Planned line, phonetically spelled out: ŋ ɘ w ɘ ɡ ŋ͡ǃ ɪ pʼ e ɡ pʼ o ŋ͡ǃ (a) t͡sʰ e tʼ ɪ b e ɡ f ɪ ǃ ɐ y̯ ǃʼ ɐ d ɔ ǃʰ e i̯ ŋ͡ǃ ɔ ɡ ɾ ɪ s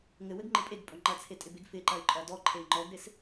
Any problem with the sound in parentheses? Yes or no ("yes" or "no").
yes